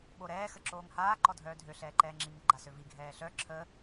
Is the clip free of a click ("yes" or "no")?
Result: no